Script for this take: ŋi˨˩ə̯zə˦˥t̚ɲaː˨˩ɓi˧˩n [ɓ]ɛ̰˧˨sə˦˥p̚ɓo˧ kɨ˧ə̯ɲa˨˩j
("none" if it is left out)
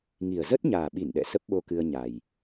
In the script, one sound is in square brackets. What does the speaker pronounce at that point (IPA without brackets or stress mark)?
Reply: ɗ